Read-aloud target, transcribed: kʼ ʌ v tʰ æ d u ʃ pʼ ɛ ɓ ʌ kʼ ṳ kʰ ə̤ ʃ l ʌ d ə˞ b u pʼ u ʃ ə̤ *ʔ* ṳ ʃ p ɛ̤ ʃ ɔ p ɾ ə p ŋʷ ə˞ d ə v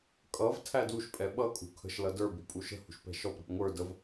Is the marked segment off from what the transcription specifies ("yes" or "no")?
yes